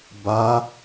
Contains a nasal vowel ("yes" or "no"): no